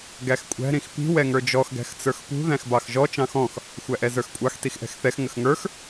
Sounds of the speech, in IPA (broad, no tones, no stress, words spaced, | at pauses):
ɡæxkʷʼæ̤ ɾĩxpi̤ wɛŋə˞d͡ʒɔx ɡæ̤xt͡sə˞xpṳ ðæ̃xbɑxʒɔ t͡ʃɑ̃xɔ̃x | xʷæʔɛzə˞xkʷʼɑx tixʔɛ̤xθɛx ŋəxŋə˞x